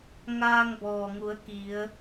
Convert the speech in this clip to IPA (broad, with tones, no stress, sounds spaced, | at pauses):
ŋ aː˧ ŋ b ɔː˩ ŋ u˩˧ ə̯ k i˩˧ ə̯